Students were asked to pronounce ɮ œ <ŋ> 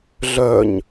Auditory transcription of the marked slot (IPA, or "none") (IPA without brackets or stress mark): ɲ